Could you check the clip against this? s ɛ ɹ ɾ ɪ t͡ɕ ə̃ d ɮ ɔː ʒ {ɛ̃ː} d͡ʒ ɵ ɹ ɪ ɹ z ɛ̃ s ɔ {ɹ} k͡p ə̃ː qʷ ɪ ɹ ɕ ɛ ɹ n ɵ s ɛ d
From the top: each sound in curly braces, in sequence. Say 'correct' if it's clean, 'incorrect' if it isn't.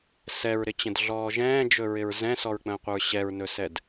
correct, correct

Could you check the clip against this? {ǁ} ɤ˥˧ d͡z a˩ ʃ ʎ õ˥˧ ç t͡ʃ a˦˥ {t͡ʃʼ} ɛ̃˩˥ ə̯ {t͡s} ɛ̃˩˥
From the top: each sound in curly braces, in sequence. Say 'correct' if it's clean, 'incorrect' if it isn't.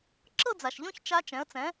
correct, incorrect: t͡ʃ, correct

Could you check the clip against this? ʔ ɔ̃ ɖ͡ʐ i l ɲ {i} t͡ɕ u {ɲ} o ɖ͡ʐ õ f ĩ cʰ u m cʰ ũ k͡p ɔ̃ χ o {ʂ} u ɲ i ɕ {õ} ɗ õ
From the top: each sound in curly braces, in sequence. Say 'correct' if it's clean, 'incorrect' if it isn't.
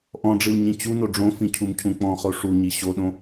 incorrect: ĩ, incorrect: n, correct, incorrect: o

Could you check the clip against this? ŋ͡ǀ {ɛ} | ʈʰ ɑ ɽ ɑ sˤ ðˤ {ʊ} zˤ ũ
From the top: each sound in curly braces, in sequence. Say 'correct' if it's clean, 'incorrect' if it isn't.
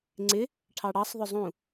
incorrect: ɪ, correct

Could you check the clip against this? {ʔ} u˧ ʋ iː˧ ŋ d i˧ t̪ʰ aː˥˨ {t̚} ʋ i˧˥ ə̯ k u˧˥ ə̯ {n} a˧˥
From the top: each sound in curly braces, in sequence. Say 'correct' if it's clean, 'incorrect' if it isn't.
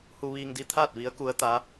incorrect: h, correct, incorrect: t̪

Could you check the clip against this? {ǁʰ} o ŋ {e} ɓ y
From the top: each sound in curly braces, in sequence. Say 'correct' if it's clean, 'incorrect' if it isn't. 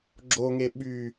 incorrect: ɡ͡ǁ, correct

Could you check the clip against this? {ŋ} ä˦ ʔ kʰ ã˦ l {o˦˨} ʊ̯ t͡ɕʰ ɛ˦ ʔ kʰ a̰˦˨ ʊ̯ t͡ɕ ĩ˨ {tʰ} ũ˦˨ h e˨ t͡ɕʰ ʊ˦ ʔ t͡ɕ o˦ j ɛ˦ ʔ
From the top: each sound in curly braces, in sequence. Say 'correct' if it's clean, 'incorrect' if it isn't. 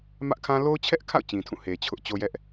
incorrect: m, incorrect: o˦, correct

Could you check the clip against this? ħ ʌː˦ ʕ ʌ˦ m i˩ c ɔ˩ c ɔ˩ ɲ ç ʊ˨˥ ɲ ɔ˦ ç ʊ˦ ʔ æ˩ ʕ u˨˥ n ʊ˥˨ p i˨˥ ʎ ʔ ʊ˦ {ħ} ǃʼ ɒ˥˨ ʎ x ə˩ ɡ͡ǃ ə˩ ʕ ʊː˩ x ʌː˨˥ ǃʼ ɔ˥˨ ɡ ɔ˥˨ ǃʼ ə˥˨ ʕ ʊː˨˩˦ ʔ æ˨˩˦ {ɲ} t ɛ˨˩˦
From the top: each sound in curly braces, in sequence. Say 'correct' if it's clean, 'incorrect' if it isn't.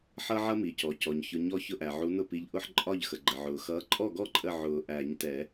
correct, correct

